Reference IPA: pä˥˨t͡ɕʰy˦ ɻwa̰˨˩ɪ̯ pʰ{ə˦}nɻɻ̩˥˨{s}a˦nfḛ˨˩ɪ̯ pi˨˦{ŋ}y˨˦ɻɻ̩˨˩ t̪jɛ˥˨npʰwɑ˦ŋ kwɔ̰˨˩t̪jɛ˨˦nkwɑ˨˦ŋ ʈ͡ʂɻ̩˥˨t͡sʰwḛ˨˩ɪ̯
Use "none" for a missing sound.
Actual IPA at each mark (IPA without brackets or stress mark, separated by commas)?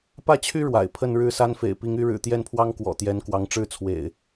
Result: ə˥˨, s, ŋ